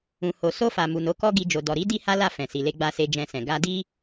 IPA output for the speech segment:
ũ˨ h o˨ s o˧ f a˨ m u˨ n o˨˦ k ɔ˦ ɡ i˧ d͡ʒ o˨ d ɔ˨ ɾ i˨˦ d i˦ h a˦ l a˦˨ f ɛ̃˨ s i˨ l e˧ ɡ͡b a˧ s e˧ d͡ʒ ɛ̃˧ s ɛ̃˨ ɡ a˧ d i˦

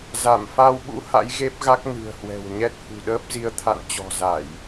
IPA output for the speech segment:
z a˧˩ m f a˧ w ɓ ṵ˧˥ h a̰˧˥ j ɣ e˦˥ p̚ ɣ a˦˥ k̚ n ɨ̤˨˩ ə̯ h w ɛ̤˨˩ w ɲ ɛ˦˥ t̚ h ṳ˨˩ ɗ əː˦˥ p̚ z i˧ ə̯ t̪ʰ a̰˧˨ n t͡ɕ ɔ̤˨˩ z a˧˩˨ j

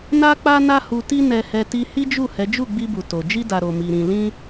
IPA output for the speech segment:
n a˦ k͡p a˦ n a˦ h u˧ t i˦ n ɛ˧ h ɛ˧ t i˧ h i˦ d͡ʒ u˦˨ h ɛ˨˦ d͡ʒ u˦˨ ɡ͡b i˧ b u˨ t o˨ d͡ʒ i˧ d a˨ ɾ o˨ m i˨ ɾ ĩ˨ l ĩ˧

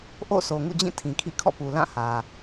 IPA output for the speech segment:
ʔ o̰˦˨ s o˨ ŋ ṵ˦˨ d͡ʑ ĩ˦˨ tʰ ĩ˨ kʰ ḭ˦˨ kʰ ɔ̰˦˨ p u˨ l ã˦˨ h ä˨

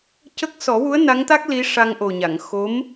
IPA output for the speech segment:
c ə˦˥ k̚ s ɔ˨˩˦ w u˧˥ ə̯ n a˧˥ ŋ t̪ a˦˥ k̚ l i˧˥ ʂ a˧ ŋ ʔ o˨˩ ɲ a˨˩˨ ŋ x o˧˥ m

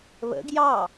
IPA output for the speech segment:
β ə̰ ɡ j ɑ

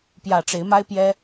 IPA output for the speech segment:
p j ä˨˩ ʈ͡ʂ e˨˦ ɪ̯ m a˦ ɪ̯ p j ɛ˦

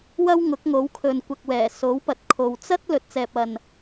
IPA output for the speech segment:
w ɐ˥ w ŋ ʊ˨˥ k̚ ŋ o˨˥ w kʰ ɵ˨ n kʷ ɐ˨ k̚ w ɛː˨˩ s o˨˥ w p ɐ˨˥ t̚ kʰ o˨ w t͡s ɐ˥ t̚ l ɵ˨ t̚ t͡s ɛː˨ p̚ ɐ˨ n

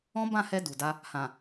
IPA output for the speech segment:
ɔ̃˦ b ã˦˨ h ɛ˧ d u˨ d a˧ | h ã˨

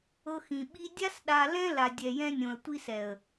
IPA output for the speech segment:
ɤ˧ x ĩ˨ ɓ i˦ dʲ a˦ s ɗ a˧ l ɛ̃˦ l a˨ dʲ ɛ˨ j ɛ̃˧ nʲ õ˨ ə̯ tʷ i˧ s ɛ˨ ə̯

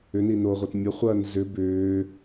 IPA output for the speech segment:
ʏ n i n o ʁʷ ɐ t mʲ ɐ χʷ ɐː n z ʏ b ʏː

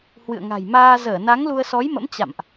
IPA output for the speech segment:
h w ɨ̰˧˨ ə̯ ŋ a̤˨˩ j m aː˧ z əː˧˩ n a˨˦ ŋ l u˧ ə̯ s ɔ˨˦ j m ə̰˧˥ m t͡ɕ a̰˧˨ m ʔ

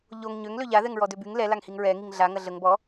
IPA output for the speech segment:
ʎ o ŋ ɲ ø ŋ l ø ʎ a ð ɛ ŋ ɹ ɔ d ø b y ŋ l ɛ l a ŋ h i ŋ ɹ ɛ ŋ i ŋ ɮ a ŋ ɐ ɮ ə ŋ b ɔ

